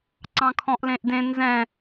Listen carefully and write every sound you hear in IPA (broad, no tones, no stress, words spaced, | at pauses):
ǀɑ̃kʰɔ̃ʔlẽʔdẽ nzɛ̃